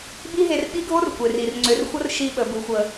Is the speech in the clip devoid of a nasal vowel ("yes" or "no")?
yes